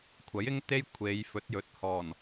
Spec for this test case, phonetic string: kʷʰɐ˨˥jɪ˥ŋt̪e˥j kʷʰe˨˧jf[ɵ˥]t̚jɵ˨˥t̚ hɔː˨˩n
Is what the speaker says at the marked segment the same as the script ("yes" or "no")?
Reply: no